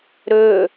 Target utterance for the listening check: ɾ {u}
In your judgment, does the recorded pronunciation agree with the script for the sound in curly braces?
no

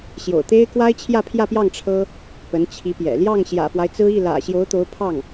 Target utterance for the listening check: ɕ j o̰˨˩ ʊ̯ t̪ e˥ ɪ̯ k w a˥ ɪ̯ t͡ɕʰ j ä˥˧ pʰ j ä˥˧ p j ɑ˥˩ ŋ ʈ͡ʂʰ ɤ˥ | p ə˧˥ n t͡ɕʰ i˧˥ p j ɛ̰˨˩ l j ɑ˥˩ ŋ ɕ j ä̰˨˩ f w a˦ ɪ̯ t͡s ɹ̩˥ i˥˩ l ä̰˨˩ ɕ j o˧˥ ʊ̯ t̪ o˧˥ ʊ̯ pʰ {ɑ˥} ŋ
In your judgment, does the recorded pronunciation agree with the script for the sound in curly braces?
no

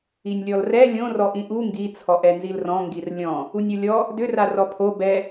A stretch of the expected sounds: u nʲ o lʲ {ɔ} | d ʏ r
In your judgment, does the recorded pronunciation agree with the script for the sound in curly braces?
yes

